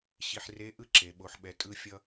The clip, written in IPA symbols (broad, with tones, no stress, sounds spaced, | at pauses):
ɕ i˧ ħ r e˧˥ ʔ ɯ˥ ǁ e˩˧ ɓ o˩˧ ħ ɓ ɛ˩˧ tʼ ɯ˧ fʲ ʌ˧